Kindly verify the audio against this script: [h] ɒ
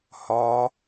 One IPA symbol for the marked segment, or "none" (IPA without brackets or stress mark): h